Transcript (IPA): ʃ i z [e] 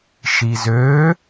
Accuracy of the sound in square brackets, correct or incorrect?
incorrect